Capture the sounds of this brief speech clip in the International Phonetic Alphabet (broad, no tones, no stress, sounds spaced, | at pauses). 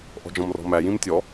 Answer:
ʔ ɔ̤ d͡ʒ ɔ̃ m r ɔ̤ m æ j ĩ m tʲ ɔ